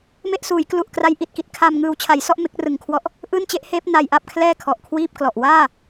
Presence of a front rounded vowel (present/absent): absent